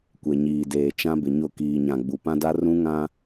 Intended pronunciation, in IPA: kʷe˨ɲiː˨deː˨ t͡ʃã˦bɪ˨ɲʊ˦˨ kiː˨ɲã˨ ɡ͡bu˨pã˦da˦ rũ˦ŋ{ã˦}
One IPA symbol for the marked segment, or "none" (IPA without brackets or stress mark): ã˦